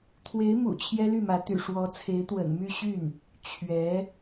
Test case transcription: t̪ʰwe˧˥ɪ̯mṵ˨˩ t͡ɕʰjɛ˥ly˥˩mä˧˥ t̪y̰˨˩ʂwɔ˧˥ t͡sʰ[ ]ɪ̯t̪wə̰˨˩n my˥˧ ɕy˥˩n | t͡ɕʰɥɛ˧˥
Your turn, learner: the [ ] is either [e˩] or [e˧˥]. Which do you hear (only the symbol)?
e˧˥